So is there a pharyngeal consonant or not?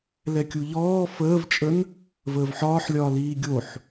yes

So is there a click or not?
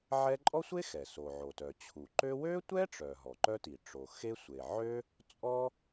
yes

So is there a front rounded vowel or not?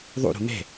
no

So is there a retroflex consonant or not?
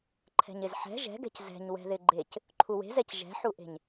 no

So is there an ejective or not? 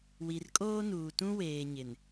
yes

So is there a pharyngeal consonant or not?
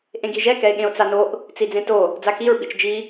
no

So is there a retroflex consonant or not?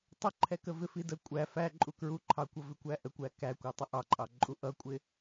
no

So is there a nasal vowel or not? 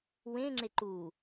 yes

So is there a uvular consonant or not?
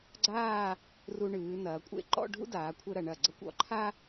no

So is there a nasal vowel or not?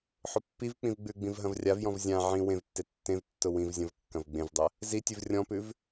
yes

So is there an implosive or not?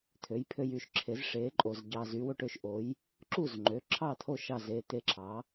no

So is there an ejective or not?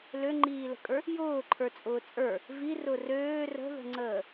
yes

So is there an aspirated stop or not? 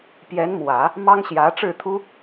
yes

